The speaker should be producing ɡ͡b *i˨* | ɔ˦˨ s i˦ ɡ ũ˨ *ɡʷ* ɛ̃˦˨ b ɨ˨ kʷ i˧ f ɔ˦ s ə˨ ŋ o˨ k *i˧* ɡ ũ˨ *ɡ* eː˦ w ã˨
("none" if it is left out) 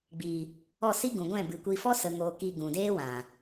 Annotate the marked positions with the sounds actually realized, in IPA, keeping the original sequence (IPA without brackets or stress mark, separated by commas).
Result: iː˨, ɡʷ, i˧, d